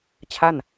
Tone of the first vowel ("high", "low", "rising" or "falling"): falling